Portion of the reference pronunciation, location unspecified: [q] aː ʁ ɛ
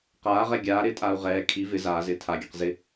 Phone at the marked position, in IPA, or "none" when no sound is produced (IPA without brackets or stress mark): q